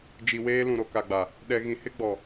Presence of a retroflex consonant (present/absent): absent